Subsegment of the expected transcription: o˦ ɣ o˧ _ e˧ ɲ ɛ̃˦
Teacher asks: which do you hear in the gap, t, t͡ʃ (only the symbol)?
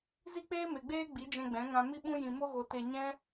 t